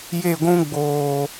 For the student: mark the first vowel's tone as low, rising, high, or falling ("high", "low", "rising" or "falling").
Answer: falling